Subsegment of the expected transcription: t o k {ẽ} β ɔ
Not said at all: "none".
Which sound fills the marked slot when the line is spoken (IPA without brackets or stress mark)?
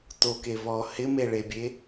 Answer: e